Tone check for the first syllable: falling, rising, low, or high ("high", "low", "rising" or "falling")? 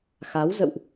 rising